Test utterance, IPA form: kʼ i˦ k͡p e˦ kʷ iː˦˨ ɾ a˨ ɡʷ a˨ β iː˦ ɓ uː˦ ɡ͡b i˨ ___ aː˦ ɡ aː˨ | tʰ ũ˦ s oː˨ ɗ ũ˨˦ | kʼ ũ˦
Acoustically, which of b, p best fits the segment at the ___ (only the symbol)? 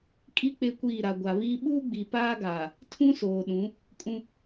p